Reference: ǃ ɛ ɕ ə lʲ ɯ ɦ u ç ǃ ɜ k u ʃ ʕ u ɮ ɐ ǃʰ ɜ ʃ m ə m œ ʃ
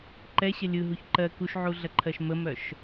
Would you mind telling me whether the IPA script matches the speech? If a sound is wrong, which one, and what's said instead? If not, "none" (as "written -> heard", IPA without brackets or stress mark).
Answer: none